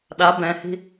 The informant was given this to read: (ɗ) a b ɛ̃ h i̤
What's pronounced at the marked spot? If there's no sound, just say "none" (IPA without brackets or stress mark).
ɗ